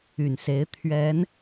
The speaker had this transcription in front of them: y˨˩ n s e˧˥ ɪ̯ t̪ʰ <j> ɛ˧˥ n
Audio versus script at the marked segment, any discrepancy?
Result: yes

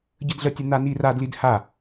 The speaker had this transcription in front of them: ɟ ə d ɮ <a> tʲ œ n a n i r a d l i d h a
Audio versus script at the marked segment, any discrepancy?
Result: yes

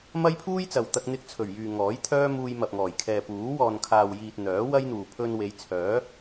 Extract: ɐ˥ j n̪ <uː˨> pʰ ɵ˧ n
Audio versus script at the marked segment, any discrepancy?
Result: no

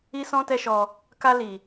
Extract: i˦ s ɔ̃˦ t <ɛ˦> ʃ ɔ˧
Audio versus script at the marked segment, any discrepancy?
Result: no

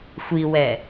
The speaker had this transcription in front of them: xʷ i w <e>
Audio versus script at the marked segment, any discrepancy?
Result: yes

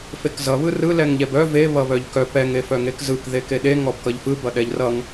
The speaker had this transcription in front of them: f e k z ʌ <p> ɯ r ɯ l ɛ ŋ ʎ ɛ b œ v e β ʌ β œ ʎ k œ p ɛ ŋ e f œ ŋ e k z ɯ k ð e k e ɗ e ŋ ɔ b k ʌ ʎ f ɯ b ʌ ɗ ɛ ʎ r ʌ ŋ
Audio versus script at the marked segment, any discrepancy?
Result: yes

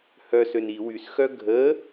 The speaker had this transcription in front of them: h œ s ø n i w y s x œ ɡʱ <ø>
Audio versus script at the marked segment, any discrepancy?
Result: yes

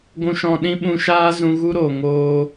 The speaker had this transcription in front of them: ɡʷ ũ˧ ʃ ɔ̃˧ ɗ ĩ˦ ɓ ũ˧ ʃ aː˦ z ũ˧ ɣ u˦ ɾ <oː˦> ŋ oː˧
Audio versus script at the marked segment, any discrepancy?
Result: yes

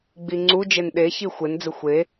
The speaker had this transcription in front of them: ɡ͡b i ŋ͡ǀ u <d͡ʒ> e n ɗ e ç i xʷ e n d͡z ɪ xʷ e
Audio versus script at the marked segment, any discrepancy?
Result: no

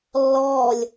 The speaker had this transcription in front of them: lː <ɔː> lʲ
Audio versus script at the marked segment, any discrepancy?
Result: no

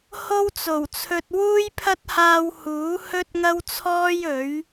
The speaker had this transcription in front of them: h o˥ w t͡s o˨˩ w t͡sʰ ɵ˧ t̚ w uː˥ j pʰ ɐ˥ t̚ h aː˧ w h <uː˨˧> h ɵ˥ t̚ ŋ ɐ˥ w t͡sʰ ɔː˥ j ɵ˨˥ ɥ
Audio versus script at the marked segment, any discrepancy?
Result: yes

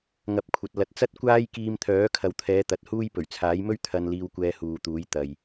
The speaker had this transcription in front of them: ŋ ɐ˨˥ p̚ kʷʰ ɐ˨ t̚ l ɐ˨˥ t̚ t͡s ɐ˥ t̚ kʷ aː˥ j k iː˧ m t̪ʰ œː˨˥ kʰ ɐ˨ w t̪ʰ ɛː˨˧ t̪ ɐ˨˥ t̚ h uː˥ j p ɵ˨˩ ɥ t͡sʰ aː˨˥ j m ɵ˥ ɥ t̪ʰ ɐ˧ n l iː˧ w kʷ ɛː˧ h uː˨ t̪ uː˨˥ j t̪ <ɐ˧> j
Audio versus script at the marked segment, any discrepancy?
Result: yes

